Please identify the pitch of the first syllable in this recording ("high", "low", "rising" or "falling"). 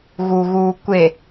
low